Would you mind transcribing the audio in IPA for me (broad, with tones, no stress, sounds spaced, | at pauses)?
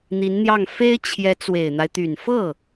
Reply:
n̪ i˧˥ n n̪ j ɑ˥˩ ŋ f e˥ ɪ̯ t͡ɕʰ j ɛ˧˥ t͡s w e˨˩ ɪ̯ n̪ a˦ ɪ̯ t̪ y˨˩ n f ɤ˥˩